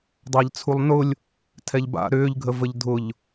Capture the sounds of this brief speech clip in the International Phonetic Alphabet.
dˤ a ʎ t͡sʰ u lˠ n ʊ lʲ | tʰ ɛ ʎ b a̰ ɾ ʏː ʎ ɡʱ ə v ə ʎ dʱ ʊ ʎ

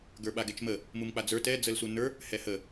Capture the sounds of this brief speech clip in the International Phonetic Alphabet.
ɡ ə˞ ɓ a ɡ ɛ t͡ʃ m ə | m u m k͡p a d͡z ə˞ t ɛ d͡z ə l s u n ə˞ | h ɛ h ə

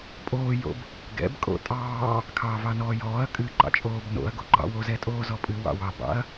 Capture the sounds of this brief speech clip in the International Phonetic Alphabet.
pʼ oː j o̰ b | ɡ ɛ̰ b kʼ o̰ tʼ ɑː | kʰ ɑː v ɑ n ɔː j ɔː ɐ̯ kʼ ɨ ǃ ɑ̰ t͡ʃʼ oː b n o̰ ɐ̯ ɡ o ɡ͡ǃ ɑ̰ w o z ɛ tʼ oː z ɔ pʼ ɨ w ɑ̰ w ɑ b ɑ̰ ɐ̯

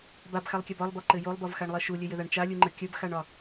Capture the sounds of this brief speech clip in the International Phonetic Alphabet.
b a b x a lˠ kʲ a b ɒ lˠ b ɒ ǃ ɘ j o lˠ b ɒ v x a ɳ lˠ ɜ ʃ u lʲ ɘ j ɘ ð a ɳ t͡ʃ a lʲ u ŋ͡ǃ ə kʲ ə b x a ɳ ɒ

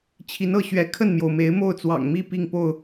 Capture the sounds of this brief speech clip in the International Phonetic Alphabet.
t͡ɕʰ i˨˦ n ɤ˥˨ ɕ ɥ ɛ˨˦ kʰ ə˥˨ n m j o˩ ʊ̯ m e˨˦ ɪ̯ m o˥˨ ʊ̯ t͡s w ɑ̰˨˩ ŋ m i˥˨ p i˥˨ ŋ p o˥˨ ʊ̯

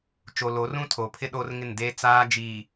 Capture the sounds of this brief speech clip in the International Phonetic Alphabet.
t͡ʃ o˨ l o˨˦ r ũ˦ tʰ o˨ pʰ ɪ˦ ɗ oː˦ r ŋ ɪ˦˨ n d eː˦ t͡s aː˦ d͡ʒ iː˨

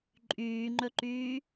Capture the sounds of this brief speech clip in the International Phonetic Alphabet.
ǃʼ yː ŋ͡ǃ ɵ ǃ yː

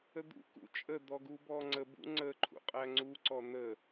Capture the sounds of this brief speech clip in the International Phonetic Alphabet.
ə d̪ ṵ k ṵ t͡ʃʼ ə d̪ ɔ ɡ u b ɔ ŋ͡ǀ ə b ṵ ŋ͡ǀ ə ǃʰ ṵ qʼ æ ŋ͡ǀ u ǀ ɔ n̪ ə

